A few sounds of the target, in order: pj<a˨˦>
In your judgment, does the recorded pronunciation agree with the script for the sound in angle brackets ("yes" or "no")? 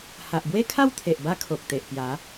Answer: yes